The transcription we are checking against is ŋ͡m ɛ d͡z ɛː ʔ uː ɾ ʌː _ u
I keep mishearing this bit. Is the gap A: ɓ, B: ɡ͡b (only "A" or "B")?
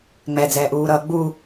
B